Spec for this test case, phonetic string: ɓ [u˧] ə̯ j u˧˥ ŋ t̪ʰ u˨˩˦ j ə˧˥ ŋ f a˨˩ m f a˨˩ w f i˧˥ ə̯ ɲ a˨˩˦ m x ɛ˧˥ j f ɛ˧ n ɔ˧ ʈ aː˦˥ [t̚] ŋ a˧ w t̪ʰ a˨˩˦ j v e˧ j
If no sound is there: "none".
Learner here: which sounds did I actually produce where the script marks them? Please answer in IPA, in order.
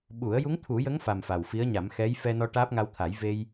u˨˩˦, p̚

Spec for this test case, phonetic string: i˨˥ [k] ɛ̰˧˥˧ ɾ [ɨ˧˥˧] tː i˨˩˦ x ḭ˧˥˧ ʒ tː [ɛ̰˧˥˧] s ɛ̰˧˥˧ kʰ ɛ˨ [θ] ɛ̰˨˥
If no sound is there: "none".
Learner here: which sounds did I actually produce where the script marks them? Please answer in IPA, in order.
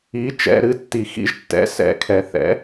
t͡ʃ, ɨ˧˥˧, ɛ̰˨˥, θ

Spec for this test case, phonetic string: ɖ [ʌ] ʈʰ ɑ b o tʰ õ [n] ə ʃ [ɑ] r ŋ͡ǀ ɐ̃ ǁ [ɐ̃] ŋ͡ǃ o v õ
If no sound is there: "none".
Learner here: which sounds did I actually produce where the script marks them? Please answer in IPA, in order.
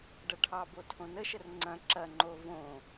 ʌ, n, ə, ɐ

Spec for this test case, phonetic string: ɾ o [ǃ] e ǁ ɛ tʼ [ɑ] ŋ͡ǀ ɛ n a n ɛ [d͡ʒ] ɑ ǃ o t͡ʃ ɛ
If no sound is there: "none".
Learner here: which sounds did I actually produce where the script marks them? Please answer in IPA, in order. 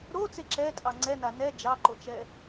t͡s, ɑ, d͡ʒ

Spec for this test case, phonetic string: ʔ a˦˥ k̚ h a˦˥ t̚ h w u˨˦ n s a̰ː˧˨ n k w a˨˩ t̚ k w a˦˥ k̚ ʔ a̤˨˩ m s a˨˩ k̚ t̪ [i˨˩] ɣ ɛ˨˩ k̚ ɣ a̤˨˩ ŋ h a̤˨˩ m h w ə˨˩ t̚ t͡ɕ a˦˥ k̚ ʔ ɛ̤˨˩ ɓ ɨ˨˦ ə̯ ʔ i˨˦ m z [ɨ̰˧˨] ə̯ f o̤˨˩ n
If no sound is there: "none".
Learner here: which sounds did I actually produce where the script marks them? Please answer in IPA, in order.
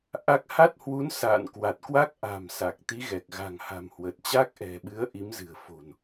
i˨˦, ɨ̤˨˩

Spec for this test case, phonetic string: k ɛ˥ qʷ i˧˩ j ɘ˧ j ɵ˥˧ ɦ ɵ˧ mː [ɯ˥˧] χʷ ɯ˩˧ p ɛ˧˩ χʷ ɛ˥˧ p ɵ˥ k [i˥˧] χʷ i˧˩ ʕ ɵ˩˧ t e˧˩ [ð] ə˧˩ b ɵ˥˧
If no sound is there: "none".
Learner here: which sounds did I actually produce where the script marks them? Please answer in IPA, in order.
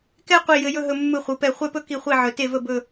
ɯ˧˩, i˧˩, v

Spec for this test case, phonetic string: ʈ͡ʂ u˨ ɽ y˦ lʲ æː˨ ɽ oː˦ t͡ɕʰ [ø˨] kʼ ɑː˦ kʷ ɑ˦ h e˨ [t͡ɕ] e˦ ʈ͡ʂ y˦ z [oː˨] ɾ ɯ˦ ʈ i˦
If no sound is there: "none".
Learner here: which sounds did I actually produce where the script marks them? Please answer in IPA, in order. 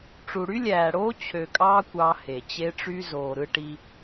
ø˨, t͡ɕ, oː˨

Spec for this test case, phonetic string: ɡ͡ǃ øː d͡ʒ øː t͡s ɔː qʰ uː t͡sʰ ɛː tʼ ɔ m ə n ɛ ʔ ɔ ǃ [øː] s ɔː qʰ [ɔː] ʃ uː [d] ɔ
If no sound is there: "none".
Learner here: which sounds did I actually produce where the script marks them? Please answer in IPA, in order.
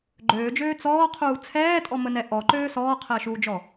øː, əː, d͡ʒ

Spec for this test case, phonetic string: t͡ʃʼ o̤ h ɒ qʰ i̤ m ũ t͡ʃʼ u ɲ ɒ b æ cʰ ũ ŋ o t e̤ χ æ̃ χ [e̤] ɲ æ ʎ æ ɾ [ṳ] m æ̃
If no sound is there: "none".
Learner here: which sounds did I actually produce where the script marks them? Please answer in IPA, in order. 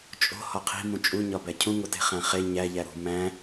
e, ṳ

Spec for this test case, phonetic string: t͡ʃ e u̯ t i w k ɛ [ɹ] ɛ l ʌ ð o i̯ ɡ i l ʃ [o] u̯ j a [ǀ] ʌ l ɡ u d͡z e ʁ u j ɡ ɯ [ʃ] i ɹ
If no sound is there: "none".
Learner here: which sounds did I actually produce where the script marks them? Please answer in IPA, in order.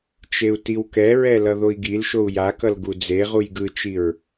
ɹ, o, k, t͡ʃ

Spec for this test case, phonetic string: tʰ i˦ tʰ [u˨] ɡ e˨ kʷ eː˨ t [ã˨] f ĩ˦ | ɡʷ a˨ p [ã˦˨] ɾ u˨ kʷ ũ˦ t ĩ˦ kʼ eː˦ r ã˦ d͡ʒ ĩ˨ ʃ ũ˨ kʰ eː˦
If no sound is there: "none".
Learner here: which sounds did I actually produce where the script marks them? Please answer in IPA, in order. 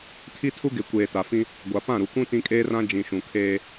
u˦, a˨, ã˦˨

